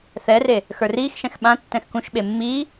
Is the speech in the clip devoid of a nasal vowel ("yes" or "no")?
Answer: no